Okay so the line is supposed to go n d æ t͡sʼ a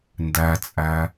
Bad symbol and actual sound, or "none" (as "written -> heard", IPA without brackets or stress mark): a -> æ